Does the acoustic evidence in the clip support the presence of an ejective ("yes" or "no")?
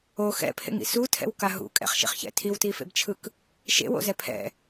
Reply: yes